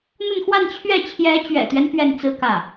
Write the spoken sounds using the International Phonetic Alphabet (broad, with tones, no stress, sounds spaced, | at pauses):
n̪ ə˥˧ n x w a˥˧ n t͡ɕʰ ɥ ɛ˥˩ t͡ɕʰ j ɛ˧˥ t͡ɕ ɥ ɛ̰˨˩ t̪ ɥ ɛ˦ n p ɥ ɛ˥˩ n t͡s ɹ̩˥ k ä˥˩